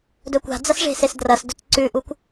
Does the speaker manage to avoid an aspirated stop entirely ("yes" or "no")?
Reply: yes